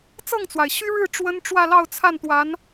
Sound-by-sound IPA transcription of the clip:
t͡s ɤ˥˩ ŋ t͡s w a˩ ɪ̯ ɕ y˥ ɻ ɻ̩˥˩ ʈ͡ʂ w ə˥ n ʈ͡ʂ w ä˥˧ l ɑ˥˧ ʊ̯ t͡sʰ a˥˩ n t̪ w a˧˥ n

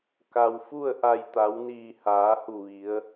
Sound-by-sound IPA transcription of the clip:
k a˩ w f u˥˨ ə̯ ʔ a˧˩ j t̪ a˩˧ w n iː˧˩ h aː˩˧ h u˧˩ ʋ i˩˧ ə̯

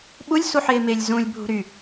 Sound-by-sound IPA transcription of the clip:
ɓ u lʲ s u ħ ɪː m ɪ lʲ z ũ lʲ bʱ ṳ ɾ y

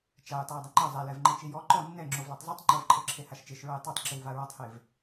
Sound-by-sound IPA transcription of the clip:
t͡ʃ a j tˤ a j dˤ ɯ ŋ͡ǃ ɤ zˤ ɛ l ɛ v ŋ͡ǃ e t͡ʃ i j ɔ ǃ ɔ nː ɛ ŋ͡ǁ o v l a tˤ zˤ i tˤ ŋ͡ǃ ɤ v ǃʰ ɤ ǁʰ e h a ʃ t͡ʃ e ʃ ɹ ɤ j tˤ a tˤ ǁ i w v a ɹ ɔ tˤ h e v

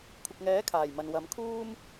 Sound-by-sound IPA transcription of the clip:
kʷʰ ɪ˨ k̚ ŋ ɛː˨˥ kʰ aː˨˩ j m ɐ˨ n w ɐ˨˥ m kʰ uː˥ m

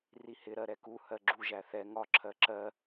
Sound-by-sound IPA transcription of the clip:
r i h ɪ ɾ ɜ ɾ ɛ k u h ɜ ɡ͡ǁ u ʒ æ θ ɛ ŋ ɒ ǁʰ ɜ ǁ ɜ

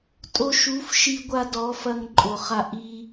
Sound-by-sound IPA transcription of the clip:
tʼ o˧ ʃ u˨˦ f ʃ i˧ ɡʷ a˧ d ɔ˨˦ f ɐ˧ ŋ ǃʼ o˨ χ a˧ ʔ i˦

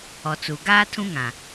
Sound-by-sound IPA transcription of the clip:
ɔ˨ t͡s u˨ ɡ aː˦ tʰ ũ˦ ŋ ã˨

